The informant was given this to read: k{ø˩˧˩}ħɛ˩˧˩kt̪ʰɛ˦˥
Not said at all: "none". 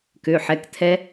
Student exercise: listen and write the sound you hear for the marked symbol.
ø˩˧˩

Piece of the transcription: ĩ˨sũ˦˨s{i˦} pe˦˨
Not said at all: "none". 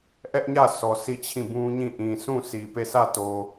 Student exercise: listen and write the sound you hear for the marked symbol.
i˨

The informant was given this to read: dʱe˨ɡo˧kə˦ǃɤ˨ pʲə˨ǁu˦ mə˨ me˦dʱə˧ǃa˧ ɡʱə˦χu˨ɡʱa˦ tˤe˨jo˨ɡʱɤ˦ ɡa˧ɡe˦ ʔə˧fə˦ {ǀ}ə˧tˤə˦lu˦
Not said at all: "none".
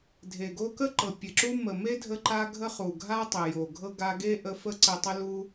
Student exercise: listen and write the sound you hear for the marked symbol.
ǀ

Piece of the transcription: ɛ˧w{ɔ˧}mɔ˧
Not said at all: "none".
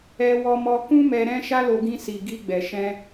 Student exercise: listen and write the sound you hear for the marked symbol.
ɔ˧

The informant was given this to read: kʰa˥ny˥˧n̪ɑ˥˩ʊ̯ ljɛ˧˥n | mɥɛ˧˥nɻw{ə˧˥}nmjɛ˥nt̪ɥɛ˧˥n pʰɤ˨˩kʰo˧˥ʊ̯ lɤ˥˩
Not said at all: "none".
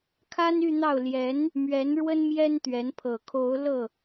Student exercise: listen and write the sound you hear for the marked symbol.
ə˥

